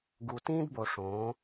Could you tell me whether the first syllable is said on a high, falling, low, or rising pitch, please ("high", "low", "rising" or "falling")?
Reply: low